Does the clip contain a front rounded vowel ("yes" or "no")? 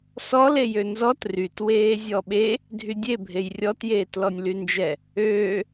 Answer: yes